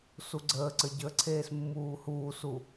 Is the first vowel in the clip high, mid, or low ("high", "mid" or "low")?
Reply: high